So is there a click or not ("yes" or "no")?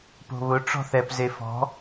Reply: no